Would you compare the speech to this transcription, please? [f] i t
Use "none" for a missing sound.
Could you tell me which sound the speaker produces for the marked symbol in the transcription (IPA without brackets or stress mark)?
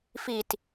f